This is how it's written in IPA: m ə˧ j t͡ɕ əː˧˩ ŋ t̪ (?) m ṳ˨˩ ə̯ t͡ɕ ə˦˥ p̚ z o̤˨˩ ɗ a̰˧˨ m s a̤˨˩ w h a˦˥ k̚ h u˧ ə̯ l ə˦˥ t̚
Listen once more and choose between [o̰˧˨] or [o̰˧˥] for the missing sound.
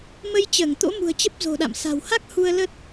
o̰˧˥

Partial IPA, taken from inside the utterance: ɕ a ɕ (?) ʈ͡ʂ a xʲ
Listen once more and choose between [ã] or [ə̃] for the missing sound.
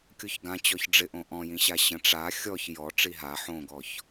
ə̃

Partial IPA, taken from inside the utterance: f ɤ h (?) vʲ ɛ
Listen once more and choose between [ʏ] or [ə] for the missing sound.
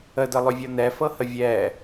ə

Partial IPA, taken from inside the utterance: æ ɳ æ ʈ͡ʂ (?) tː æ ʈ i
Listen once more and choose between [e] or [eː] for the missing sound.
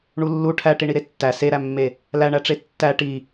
e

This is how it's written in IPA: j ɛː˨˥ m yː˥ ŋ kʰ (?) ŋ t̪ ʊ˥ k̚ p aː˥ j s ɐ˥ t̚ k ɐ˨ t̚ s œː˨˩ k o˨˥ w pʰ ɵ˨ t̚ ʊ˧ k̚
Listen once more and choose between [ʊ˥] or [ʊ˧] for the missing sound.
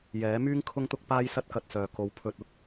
ʊ˥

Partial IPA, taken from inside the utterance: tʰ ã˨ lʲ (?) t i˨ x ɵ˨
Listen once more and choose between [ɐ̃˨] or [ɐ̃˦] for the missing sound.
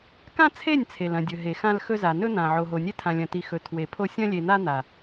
ɐ̃˨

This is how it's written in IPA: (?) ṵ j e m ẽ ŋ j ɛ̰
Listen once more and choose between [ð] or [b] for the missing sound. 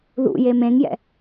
ð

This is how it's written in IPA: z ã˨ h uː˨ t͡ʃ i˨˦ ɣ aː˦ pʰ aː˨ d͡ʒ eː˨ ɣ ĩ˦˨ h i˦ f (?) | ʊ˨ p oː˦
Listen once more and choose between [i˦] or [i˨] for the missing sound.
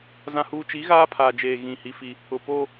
i˦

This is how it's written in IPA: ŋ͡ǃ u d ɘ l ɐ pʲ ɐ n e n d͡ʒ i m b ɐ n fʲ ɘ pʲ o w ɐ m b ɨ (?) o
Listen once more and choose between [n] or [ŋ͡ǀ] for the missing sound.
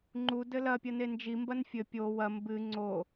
ŋ͡ǀ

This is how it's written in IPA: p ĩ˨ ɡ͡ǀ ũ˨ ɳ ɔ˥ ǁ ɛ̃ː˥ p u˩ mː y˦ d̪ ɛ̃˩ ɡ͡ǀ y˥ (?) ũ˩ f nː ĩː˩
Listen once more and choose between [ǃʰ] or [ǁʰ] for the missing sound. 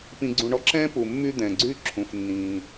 ǁʰ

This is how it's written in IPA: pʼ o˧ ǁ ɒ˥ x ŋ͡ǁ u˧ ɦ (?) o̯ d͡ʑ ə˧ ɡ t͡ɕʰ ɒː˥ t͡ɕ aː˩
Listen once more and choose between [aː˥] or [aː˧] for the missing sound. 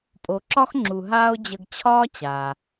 aː˥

